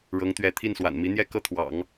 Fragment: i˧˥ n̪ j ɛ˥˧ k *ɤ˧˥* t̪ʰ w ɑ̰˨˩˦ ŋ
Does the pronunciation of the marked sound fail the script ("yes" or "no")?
yes